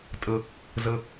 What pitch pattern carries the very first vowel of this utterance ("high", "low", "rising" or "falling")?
low